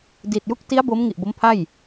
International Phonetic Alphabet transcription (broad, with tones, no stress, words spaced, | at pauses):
di˨˩t̚ju˦˥k̚ ti˦˥a̯ bo˦˥mŋi˨˩ʔ bo˦˥mpʰa˥˩j